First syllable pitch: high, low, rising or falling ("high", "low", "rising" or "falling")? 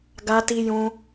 high